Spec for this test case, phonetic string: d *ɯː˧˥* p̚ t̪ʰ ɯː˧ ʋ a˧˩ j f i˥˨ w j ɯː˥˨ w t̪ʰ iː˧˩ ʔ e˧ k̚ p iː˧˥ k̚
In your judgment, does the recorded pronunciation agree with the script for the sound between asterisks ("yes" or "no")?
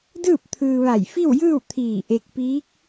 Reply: no